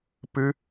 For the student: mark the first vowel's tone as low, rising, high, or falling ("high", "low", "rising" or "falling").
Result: high